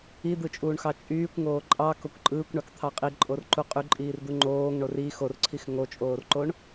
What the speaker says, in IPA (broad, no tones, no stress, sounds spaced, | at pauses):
i d̪ ɯ t͡ʃʼ uː ɳ x ɑ t͡ʃʼ yː kʷ ŋ oː ǃʼ ɑ k o kʷ ǃʼ ɯː kʷ ɳ ɑ k t̪ʰ ɑ qʼ i ǃʼ o r ǃ u qʼ y ǃʼ iː r d̪ u ŋ͡ǃ oː ŋ ɳ o r i x o r ǀʰ i x ŋ o t͡ʃʼ oː r ǃ o ɳ